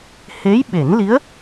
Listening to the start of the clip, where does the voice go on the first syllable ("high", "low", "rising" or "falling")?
rising